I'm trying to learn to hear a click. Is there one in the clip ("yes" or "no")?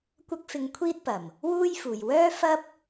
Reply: no